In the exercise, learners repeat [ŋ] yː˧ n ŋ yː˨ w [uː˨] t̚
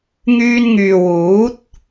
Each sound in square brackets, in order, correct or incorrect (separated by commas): correct, incorrect